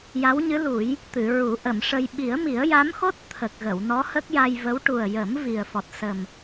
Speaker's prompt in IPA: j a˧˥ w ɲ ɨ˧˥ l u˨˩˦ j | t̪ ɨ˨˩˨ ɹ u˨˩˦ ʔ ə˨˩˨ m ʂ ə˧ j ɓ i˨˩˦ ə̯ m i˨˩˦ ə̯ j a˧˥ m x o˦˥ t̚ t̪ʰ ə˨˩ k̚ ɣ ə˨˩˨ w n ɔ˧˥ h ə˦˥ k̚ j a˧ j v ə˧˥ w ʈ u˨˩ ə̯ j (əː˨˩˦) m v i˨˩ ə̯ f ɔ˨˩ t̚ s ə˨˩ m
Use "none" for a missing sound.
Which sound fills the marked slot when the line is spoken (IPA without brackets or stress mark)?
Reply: ə˨˩˦